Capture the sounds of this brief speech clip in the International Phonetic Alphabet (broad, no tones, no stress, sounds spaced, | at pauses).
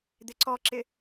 d̪ ɪ ǀ ɔ ǁ ɪ